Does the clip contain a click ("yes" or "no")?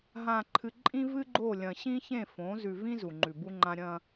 yes